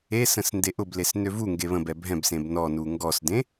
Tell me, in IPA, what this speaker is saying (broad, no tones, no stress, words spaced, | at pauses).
esə̃s ndeʔʊbles nøvuŋɡe βə̃bɛ bʱɛ̃bsẽb nɔnu ŋɡɔsdẽ